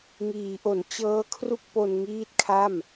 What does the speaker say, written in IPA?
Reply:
ŋ iː˩˦ ʔ o˩˦ n t͡ɕ ɤː˦˥ kʰ r u˥˩ k̚ p o˧ n ŋ iː˦˥ t̚ kʰ a˥˩ m

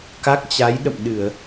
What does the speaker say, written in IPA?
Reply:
k a˦˥ k̚ t͡ɕ a˨˦ j ɗ ə̰˧˨ m ɗ ɨ˧˩˨ ə̯

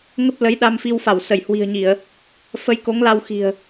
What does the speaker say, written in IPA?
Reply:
ŋ ə˦˥ p̚ l ə˨˦ j ɗ a˧ m f i˧ w f a˧˩ w s ə˧˩ j h w i̤˨˩ ə̯ ɲ i˧˩˨ ə̯ | f ə˧ j k o˨˦ ŋ l a˧ w x i̤˨˩ ə̯

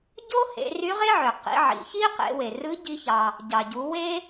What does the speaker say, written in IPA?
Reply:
ɟ o˥ h ḛ˩˧ r y˧˥ ʁ e˥ ʕ ø˩ q ḭ˩˧ ʕ ḭ˩ ç i˥ q ḛ˩˧ w e˩ r ɯ˧˥ ɟ i˧ ç ɑ˩ | ɟ ɑ˩ ɟ u˩˧ w e˥

